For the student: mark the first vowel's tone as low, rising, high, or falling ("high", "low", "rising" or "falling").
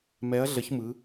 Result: rising